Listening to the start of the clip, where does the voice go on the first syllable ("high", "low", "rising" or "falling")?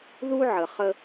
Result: high